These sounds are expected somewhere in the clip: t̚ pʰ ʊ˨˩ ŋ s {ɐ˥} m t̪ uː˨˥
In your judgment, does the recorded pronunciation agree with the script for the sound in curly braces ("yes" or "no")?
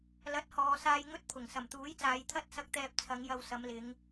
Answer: no